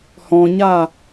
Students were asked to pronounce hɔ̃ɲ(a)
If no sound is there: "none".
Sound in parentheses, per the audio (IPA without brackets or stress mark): a